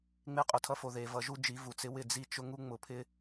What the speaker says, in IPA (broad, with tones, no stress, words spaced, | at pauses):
ŋ͡me˦˨qʼʊ˨tʰʌ˦fo˨ ðe˨ vʌ˨ʒu˦d͡ʒi˨˦ vu˨t͡sɪ˦wɪ˦˨ d͡zi˦t͡ʃʊ˦ ŋu˦ŋ͡mʊ˨pʰɪ˦